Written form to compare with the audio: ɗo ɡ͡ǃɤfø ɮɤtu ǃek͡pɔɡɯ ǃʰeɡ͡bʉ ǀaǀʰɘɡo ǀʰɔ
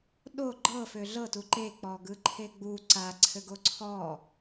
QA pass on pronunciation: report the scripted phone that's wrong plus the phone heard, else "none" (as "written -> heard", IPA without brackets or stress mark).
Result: ʉ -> u